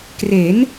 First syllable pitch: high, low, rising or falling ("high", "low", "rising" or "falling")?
rising